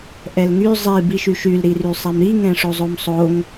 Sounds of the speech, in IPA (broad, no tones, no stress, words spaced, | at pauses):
ʔɛlŋy zˤi biʃyʃyl ɾirysˤɛmɾi ŋɛ̃ʂozˤomsˤoŋ